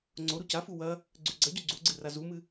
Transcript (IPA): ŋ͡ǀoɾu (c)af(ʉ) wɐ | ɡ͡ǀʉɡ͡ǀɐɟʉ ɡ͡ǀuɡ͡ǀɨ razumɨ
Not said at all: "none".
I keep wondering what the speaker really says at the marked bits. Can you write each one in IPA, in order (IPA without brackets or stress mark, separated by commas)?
c, u